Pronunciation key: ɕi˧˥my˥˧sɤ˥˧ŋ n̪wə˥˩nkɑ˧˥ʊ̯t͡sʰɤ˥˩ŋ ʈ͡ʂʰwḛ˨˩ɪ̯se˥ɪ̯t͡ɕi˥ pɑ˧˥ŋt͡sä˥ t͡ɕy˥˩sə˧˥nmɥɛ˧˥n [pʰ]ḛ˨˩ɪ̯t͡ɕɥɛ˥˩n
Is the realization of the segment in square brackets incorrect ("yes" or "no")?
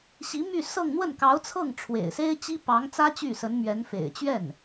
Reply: yes